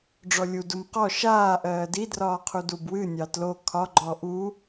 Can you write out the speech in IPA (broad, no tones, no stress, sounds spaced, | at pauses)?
ɖ͡ʐ ɔ lʲ u d u m q ɔ ʃ aː ʔ ɜː d i d r ɒː qʰ u d u b w ɨ nʲ ɑ t l o kʰ ɒ ɡ͡ǃ ɔ ʔ u